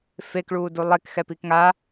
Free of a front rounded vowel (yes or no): yes